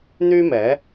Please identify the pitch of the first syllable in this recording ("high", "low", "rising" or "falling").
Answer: high